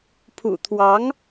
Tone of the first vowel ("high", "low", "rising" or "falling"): low